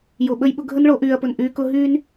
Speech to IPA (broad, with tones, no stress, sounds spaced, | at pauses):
j o˨ ɓ ə˧ j ɓ ʊ˧ ɡʱ ə˦ n ɭ o˨˦ ʔ yː˨ ɐ̯ p ʊ˨ n ʔ yː˧ k ʊ˦ ɦ yː˦ n